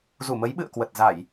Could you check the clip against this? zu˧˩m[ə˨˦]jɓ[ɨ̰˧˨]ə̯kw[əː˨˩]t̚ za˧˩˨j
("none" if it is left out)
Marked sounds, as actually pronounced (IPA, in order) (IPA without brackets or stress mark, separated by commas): ə˨˦, ɨ̰˧˨, ə˨˩